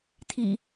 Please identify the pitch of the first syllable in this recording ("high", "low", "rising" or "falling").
low